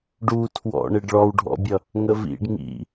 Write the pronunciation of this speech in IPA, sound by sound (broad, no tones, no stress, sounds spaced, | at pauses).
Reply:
ɖ u tʰ w ɔ̰ ɳ ɪ ɖ ɭ ɔ w ɖʱ ɔ̰ bʲ ʌ | ŋ ə v ḭ ɖ ŋ ḭ